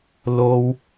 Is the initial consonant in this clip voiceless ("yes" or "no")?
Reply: no